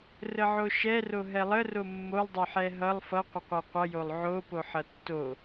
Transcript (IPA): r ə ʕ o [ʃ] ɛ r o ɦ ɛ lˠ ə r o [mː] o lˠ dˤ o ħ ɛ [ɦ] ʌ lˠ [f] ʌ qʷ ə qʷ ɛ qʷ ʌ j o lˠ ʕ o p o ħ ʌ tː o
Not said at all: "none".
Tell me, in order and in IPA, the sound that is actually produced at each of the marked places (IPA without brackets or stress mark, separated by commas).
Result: ʃ, mː, ɦ, f